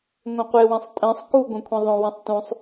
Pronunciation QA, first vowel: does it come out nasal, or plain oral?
nasal